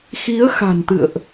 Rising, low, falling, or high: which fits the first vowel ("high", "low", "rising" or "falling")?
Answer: rising